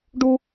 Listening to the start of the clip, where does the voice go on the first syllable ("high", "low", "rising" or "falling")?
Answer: high